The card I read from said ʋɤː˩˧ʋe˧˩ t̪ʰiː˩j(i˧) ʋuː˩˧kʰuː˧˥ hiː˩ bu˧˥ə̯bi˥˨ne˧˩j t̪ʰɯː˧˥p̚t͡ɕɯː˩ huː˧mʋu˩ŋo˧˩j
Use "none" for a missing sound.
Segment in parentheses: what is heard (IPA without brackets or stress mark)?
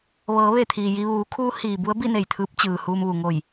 i˧